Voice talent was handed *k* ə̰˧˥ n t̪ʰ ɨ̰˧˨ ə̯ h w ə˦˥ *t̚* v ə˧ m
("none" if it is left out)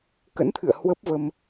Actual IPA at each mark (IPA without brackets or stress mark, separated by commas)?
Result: k, p̚